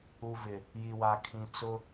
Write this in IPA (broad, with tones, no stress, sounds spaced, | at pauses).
u˨ v ɪ˨ | j i˨ w a˨ kʰ ĩ˨ t͡s ʊ˦